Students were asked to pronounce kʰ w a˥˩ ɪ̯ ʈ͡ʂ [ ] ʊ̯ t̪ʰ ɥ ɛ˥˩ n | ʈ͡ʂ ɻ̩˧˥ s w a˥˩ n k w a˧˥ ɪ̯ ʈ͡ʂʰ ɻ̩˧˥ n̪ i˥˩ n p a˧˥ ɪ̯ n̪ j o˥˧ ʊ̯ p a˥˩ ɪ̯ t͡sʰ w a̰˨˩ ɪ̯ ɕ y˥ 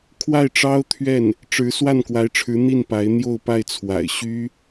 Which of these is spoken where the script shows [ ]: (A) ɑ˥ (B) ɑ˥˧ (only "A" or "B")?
A